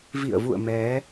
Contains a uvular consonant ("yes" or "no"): no